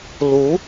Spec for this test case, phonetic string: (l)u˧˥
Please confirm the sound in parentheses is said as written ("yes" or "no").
yes